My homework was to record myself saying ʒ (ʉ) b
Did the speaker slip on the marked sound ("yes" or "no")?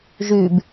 no